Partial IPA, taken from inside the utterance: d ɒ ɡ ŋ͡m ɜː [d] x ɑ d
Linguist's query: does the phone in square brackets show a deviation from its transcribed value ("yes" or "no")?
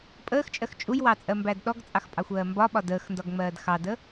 no